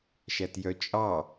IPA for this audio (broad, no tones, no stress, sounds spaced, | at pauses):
ʃ æ t j œ t͡ʃʼ ɑ